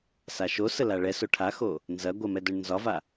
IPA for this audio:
s a ʃ o s ə l a ɭ ɛ s o ʈʰ a x o | n z ɐ ɡʷ ə m ɛ d œ ɳ n z ɒ v a

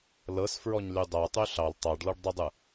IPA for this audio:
l ɤ s f ɹ ɔ ɲ l y dˤ a tˤ y ɬ ɑ l tˤ ɑ ɖ l ɔ ɖ dˤ ɯ dˤ ɯ

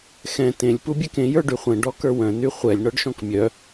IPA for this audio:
x ɛ̃ t ẽ lʲ p u bʲ ɛ k ẽ j ə˞ ɖ y χʷ ɛ̃ ɖ ɔ k ə˞ w œ̃ n y χʷ ɛ lʲ ɳ ɔ ɖ ʃ ɔ̃ k mʲ œ

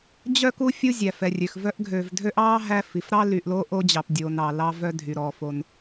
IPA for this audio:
d͡ʑ œ˥ k u˦ fʲ u˥ zʲ æ˩ f ɛ˩ rʲ ø˩ x v œ˦ ʔ ɡʱ øː˨ v dʱ ø˥ ʔ ɑː˥ ɦ æ˦ f i˩ f ɾ ɑ˥ l y˨ ʔ l o˦ ʔ o˥ d͡ʑ ɑ˨ p dʲ oː˨ n ɑ˩ l ɑ˦ v œ˦ dʱ y˩ ɾ ɔ˩ f o˨ n

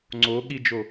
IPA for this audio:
ŋ͡ǀ o ɠ i d͡ʒ o

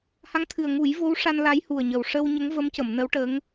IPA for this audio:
h a˧˥ ŋ t̪ʰ ɨ˨˩ ə̯ ŋ u˨˩˦ j v o˧˥ w ʂ a˧ n l a˧˥ j h u˨˩ ə̯ ɲ ə˨˩ w ʂ ə˧ w ɲ ə˧˥ ŋ v ə˧˥ m c ə˨˩˨ m n ə˧˥ w ʈ ə˧˥ ŋ

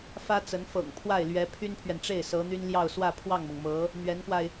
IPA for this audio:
f ä˥ t͡s ə˧˥ n f ɤ̰˨˩ ŋ pʰ w a˥˩ ɪ̯ l ɥ ɛ˧˥ pʰ y˥ n pʰ ɥ ɛ˨ n ʈ͡ʂ e˥˩ ɪ̯ s ɤ˧˥ n̪ y˥ n l j ɑ˥˧ ʊ̯ s w ä˥˧ pʰ w ɑ˥˩ ŋ m ɤ˩ ŋ m ɤ˧˥ | n̪ ɥ ɛ˧˥ n k w a˧ ɪ̯

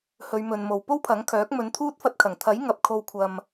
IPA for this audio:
h ɵ˨˧ ɥ m ɵ˨ n m o˨ w p o˥ w pʰ ɐ˨˥ ŋ kʰ œː˨˥ k̚ m ɵ˨˧ n t̪ʰ uː˥ t̚ f ɐ˧ t̚ kʰ ɐ˨˩ ŋ t̪ʰ ɐ˨˥ j ŋ ɐ˨ p̚ kʰ o˧ w kʷʰ ɐ˧ m

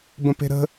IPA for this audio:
b ə̃ p e̤ ɾ ə̤

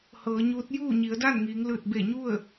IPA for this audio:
h ɤː˩˧ ɲ uː˧˥ t̚ j uː˥˨ ɲ i˩˧ ə̯ d a˥˨ n ŋ iː˩˧ ŋ l ɯː˧˩ t̚ b e˧˩ ɲ u˥˨ ə̯

